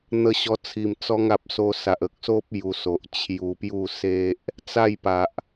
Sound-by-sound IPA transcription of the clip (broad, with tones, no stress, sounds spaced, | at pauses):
n̪ ə˧ ɕ ɔ˧ t͡sʰ i˨˩ m t͡s ɔ˧ ŋ a˨ p̚ s o˧ s a˨ ʔ ə˨ k̚ s o˦ p̚ j u˧ s o˨ ʔ t͡ɕʰ j u˧ p j u˥˧ s e˦ ʔ | t͡s a˥˧ j p a˨ ʔ